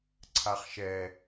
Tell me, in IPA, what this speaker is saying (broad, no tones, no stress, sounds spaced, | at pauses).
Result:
ǀʰ a χ ʃ ɛ